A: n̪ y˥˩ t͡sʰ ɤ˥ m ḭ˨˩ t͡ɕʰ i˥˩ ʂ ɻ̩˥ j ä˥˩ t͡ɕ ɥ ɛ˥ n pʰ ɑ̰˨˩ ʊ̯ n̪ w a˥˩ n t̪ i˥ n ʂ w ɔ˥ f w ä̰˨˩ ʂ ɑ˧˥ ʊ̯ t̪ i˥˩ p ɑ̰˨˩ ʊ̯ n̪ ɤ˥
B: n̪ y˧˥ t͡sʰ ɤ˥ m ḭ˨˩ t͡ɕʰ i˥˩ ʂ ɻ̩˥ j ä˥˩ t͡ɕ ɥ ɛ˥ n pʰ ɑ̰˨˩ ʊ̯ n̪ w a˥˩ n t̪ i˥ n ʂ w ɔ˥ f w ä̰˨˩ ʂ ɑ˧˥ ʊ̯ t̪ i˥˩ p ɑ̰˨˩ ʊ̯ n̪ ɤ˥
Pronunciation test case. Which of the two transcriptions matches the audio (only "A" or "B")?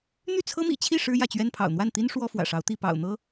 A